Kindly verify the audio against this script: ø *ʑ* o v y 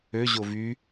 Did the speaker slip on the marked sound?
no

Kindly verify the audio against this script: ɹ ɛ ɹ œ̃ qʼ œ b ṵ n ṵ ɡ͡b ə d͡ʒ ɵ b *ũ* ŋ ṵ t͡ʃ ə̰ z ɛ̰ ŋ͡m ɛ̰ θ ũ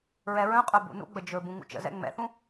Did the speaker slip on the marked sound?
no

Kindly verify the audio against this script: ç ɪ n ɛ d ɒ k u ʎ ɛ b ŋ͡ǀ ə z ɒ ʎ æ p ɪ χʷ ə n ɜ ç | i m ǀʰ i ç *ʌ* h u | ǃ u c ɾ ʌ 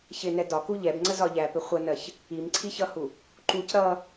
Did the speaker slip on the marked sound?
no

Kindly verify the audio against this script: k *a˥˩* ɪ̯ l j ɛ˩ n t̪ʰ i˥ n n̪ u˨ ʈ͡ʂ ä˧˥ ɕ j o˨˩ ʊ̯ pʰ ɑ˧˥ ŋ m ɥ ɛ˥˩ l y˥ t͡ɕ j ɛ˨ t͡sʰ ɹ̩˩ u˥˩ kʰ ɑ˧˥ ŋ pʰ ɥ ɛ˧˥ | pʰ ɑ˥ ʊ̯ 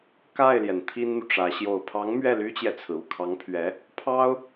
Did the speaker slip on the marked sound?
no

